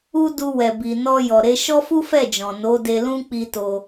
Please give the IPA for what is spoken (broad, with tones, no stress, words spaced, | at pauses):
u˦ du˧ wɛ˨bi˨nɔ˧ jɔ˨ɾe˨˦ ʃɔ˦fu˦fɛ˦˨d͡ʒɔ̃˨ no˨˦de˧lũ˦ k͡pi˧ to˧